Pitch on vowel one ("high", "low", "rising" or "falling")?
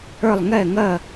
falling